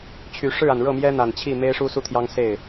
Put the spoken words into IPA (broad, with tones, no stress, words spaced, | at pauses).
t͡ɕʰy˨˩ ʂɻ̩˥˩a˩n ɻɤ˥˩mjɛ˥n̪a˨˩n t͡ɕʰi˥˩ me˥ɪ̯ʂu˥su˥˩t̪ʰjɑ˥ŋ se˥˩ɪ̯